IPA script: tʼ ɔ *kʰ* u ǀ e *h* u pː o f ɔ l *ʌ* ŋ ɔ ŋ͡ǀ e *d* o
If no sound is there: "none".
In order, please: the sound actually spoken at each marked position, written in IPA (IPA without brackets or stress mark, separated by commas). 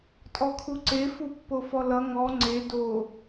kʰ, f, ʌ, d